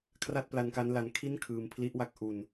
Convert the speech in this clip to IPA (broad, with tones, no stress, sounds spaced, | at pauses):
kʰ r a˥˩ t̚ p l a˧ n k a˦˥ n l a˧ n kʰ i˥˩ n kʰ ɯː˧ m pʰ l i˦˥ ʔ w a˦˥ k̚ ʔ u˧ n